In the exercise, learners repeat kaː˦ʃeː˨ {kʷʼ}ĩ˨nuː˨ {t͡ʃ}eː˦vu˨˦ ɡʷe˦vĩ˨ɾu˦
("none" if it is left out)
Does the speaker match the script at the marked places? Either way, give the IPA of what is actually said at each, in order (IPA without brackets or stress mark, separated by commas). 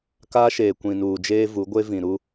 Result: kʷ, d͡ʒ